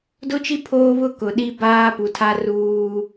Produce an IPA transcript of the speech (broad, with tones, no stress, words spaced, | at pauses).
dʊ˦t͡ʃi˦ pʰoː˦βʊ˦ kʊ˨ɗi˦baː˦pu˨ tʰa˦ruː˦